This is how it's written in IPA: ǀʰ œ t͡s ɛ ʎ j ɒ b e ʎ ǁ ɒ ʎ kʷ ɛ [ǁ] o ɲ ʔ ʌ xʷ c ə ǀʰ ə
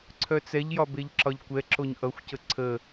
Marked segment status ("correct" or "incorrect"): correct